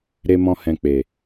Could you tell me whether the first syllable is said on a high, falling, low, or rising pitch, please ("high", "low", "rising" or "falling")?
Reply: high